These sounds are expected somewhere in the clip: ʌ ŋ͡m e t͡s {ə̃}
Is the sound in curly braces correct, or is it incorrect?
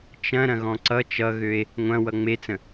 correct